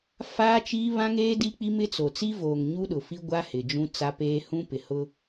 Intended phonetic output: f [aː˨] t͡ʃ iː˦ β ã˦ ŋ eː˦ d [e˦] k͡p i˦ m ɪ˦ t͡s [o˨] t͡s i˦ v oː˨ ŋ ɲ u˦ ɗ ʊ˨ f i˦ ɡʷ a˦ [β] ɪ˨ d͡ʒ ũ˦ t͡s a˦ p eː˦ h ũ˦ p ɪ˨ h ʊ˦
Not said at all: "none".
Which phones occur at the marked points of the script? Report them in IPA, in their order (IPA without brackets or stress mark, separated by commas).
aː˦, i˦, o˨, h